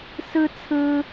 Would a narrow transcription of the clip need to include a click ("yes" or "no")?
no